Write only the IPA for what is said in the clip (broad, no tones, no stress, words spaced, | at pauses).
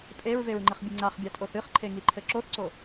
pʼeɹveɹŋ͡ǃɘχbʲɨ ŋ͡ǀaχbʲatʼoθ ɨχǃʰeŋiǃʰɘ ǁoθǀo